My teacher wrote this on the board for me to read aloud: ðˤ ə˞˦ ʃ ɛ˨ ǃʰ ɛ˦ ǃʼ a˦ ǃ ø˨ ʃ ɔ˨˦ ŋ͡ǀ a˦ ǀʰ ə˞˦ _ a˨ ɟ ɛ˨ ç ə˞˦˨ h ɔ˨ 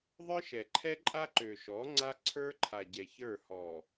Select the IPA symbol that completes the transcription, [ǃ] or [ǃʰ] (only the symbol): ǃʰ